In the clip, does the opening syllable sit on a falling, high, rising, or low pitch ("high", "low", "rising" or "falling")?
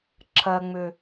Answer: low